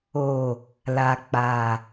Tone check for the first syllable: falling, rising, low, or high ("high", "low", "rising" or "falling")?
low